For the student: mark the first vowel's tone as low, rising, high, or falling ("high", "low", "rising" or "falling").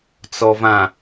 low